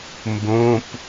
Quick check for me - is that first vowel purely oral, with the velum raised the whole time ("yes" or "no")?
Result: no